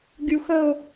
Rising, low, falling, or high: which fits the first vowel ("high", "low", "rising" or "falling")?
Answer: high